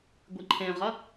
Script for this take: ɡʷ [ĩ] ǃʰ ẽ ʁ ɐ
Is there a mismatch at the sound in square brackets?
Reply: yes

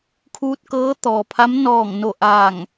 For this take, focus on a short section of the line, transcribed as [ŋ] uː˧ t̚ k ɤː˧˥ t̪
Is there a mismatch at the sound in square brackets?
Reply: yes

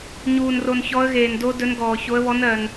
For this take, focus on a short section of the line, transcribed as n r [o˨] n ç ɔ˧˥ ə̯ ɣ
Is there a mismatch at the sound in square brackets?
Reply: no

